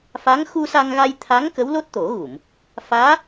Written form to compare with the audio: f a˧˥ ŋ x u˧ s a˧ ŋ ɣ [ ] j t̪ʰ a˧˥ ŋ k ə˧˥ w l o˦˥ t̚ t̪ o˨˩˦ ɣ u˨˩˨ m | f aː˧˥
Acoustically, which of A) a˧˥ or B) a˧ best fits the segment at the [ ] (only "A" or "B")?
B